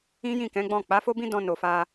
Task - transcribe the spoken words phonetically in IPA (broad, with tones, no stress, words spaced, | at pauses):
ĩ˦jĩ˦˨kɛ̃˨˦ɡ͡bɔ̃˦˨ k͡pa˨˦fo˦bĩ˦ dɔ̃˧no˨fa˧